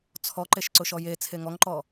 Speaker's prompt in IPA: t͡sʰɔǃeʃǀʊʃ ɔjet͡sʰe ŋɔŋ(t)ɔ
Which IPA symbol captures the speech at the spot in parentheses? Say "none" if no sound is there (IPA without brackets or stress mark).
ǃ